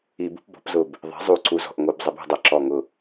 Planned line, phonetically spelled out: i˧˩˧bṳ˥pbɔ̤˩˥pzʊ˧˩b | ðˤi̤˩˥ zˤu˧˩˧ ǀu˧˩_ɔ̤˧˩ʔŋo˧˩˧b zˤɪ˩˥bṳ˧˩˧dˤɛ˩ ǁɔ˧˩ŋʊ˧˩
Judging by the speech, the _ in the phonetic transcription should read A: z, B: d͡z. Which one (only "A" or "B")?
A